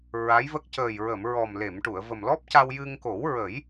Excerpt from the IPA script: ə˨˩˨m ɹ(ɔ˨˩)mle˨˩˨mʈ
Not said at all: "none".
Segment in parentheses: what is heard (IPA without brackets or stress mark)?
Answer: ɔ˨˩